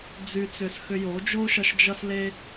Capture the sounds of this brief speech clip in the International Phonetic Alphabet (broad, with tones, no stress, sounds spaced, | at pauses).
d͡z y˧ t͡s ʏ˧ s x ʏ˧ j o˨˦ d͡ʒ o˦ ʃ ʌ˧ ʃ d͡ʒ ʌ˧ s l e˧